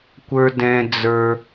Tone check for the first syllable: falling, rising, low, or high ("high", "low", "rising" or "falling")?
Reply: high